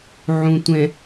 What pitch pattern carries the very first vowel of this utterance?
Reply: low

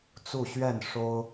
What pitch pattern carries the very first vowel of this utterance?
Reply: falling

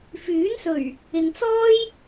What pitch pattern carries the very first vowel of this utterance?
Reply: rising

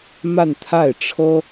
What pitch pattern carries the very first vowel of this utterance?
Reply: falling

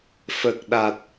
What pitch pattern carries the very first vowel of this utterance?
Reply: low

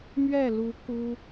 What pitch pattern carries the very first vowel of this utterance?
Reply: falling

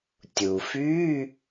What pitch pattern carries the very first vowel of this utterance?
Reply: low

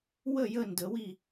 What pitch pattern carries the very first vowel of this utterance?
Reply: falling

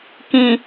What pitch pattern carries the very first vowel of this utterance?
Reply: low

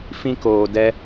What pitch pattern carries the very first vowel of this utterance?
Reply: high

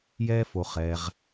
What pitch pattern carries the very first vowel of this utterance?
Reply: high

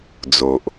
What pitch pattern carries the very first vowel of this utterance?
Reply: low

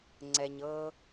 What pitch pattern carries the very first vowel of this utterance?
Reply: low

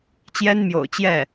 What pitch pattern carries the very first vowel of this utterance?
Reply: high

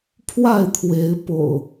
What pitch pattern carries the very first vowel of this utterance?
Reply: falling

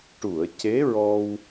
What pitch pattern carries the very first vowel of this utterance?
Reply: low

